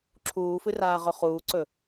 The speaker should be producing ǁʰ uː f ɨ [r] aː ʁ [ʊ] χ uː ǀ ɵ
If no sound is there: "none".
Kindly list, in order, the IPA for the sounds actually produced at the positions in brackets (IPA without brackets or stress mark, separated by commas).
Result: r, ɵ